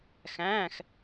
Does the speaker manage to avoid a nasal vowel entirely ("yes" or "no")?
no